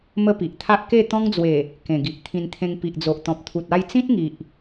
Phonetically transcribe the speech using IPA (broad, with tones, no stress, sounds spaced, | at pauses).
m ə˦ p i˨ ʔ t̪ʰ a˦ ʔ k e˥˧ t̪ ɔ̃˦ ŋ d͡z w e˨˩ | k ẽ˨˩ ɡ i˨ ʔ t̪ʰ ĩ˧ n t̪ʰ ẽ˧ ŋ p i˨ ʔ d͡z o˨ ʔ t̪ ɔ̃˨ p̚ t̪ʰ u˨ t̚ a˥˧ j t͡s ĩ˦ t̚ ŋ i˨ ʔ